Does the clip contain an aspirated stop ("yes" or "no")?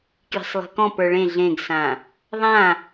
no